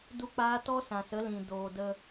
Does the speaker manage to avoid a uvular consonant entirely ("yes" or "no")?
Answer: yes